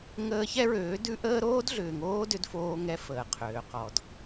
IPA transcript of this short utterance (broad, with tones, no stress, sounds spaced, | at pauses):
ŋ əː˦ ç ɛ˦ ɹ øː˨˦ d ʉ˦ ʔ əː˦ ɾ oː˦ d ɮ ʏː˨ ŋ oː˦ d ʏ˦ d f oː˦ ŋ ɛ˦ f əː˨ qʰ øː˨ q ɔ˨ d